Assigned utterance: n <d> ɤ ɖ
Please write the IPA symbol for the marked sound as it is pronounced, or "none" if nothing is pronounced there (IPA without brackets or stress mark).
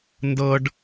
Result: d